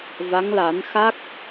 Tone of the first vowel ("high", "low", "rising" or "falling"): rising